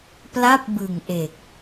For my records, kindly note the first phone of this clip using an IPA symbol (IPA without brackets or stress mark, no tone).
p